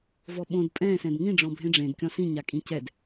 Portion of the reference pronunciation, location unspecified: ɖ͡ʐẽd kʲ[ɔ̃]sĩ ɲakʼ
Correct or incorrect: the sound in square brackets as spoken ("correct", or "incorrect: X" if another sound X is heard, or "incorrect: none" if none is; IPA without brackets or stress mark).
correct